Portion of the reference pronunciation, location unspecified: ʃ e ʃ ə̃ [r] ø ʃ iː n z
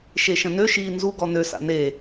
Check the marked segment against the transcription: incorrect: n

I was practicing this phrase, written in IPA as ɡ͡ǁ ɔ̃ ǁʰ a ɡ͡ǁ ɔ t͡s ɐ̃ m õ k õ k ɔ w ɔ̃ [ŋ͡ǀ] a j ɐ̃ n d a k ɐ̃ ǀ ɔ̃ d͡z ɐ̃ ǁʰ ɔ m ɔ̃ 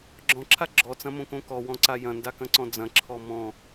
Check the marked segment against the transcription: incorrect: ǀ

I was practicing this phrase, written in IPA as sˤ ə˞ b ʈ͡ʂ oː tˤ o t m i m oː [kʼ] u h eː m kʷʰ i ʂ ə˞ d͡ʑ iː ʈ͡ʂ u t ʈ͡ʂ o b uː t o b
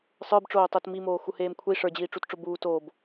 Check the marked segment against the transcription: incorrect: x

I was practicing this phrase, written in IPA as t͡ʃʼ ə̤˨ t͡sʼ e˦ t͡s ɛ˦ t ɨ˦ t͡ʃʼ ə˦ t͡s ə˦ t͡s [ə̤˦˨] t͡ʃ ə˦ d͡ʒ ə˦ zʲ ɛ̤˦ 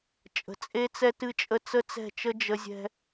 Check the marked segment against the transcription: incorrect: ɛ̤˦˨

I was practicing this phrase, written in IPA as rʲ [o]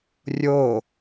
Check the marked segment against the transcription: correct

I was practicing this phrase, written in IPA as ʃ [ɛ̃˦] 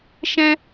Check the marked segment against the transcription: correct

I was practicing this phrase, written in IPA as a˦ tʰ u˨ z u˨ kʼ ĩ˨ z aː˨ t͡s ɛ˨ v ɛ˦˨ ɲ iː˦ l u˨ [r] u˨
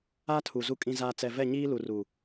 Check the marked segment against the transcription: correct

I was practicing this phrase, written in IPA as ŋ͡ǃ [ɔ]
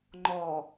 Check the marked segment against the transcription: correct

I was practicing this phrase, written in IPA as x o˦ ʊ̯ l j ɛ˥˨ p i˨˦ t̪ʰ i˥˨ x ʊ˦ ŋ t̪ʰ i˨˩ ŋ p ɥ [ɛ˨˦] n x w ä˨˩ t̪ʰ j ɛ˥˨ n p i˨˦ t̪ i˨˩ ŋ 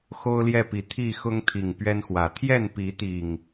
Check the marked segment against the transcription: incorrect: ɛ˦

